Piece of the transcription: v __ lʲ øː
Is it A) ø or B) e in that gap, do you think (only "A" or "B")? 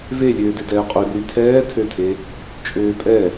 B